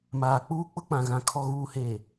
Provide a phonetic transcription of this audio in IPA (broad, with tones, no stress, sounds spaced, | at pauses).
m aː˨ k͡p uː˦ k͡p ʊ˦ k͡p ã˨ ɣ ã˨ kʰ ɔ˨ ɣ uː˨ h e˨